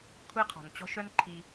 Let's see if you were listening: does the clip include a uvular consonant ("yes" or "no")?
yes